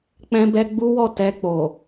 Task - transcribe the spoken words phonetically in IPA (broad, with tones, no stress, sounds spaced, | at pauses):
k͡p ɛ̃˦ b ɛ˦ ɡ͡b u˦ w ɔ˦˨ t ɛ˧ k͡p o˨